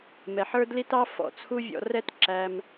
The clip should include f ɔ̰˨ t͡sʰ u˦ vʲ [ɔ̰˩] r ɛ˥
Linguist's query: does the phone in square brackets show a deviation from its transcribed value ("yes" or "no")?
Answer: yes